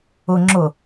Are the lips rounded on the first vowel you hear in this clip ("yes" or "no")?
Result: yes